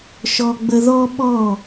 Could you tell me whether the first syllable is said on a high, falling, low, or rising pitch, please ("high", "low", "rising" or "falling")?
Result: high